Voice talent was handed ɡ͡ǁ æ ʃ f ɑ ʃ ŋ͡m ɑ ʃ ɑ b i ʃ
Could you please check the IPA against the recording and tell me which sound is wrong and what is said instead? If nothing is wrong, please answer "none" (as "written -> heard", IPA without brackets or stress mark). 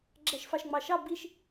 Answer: none